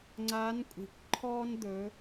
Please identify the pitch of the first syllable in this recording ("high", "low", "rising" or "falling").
rising